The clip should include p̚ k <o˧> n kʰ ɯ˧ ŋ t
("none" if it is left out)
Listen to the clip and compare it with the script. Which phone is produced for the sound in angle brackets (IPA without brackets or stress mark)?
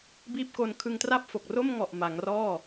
o˧